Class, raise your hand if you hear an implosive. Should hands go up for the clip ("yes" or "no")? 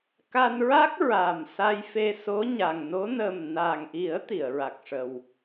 no